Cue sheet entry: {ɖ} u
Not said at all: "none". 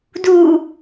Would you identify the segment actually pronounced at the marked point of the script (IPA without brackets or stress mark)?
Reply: d